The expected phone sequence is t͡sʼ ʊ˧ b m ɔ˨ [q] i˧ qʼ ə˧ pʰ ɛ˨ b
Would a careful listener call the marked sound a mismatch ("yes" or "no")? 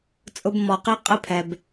no